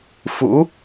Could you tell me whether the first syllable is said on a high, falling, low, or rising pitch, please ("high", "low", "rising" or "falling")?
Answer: rising